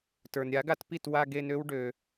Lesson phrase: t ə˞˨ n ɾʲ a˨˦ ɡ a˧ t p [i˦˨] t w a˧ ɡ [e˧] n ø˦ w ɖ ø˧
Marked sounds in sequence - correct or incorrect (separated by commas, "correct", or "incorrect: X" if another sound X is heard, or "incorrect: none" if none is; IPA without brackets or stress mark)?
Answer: correct, correct